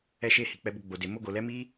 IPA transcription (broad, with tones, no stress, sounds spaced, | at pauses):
ɛ˧ ʃ e˧ h i˨ k͡p ɛ˧ b o˧ ɡ͡b o˨ d e˨ m o˧ ɡ o˨ l ɛ˨˦ m i˦